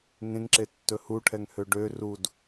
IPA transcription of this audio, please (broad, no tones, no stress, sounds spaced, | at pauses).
ŋ ẽ ŋ ǁ e tː ɵ h u ʈʰ ɛ ŋ h ø ɖ ø r u d